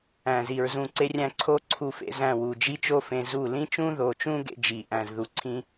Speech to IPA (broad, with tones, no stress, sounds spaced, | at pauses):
æ̃˨ z i˨ ɹ z ũ˧ ǀ e˦ rʲ æ̃˦ ǀʰ o˦ ǀʰ u˧ f ḛ˧ z æ̃˦˨ w u˨ d͡ʒ i˦ t͡ʃ o˦ f ẽ˧ z u˦˨ l ĩ˦ t͡ʃ ũ˦ ð o˨ t͡ʃ ũ˦ ɡ ḛ˦ d͡ʒ i˨ ʔ æ̃˨ z ð u˨ ǀʰ ĩ˦